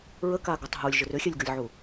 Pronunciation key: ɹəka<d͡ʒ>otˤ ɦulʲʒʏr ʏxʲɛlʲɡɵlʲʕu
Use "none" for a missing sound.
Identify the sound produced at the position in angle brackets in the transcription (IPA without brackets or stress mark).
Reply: ɡ